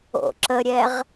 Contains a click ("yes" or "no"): yes